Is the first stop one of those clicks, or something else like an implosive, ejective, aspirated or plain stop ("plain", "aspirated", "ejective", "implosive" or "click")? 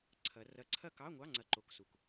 click